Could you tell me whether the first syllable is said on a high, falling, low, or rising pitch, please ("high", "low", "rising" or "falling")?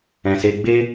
low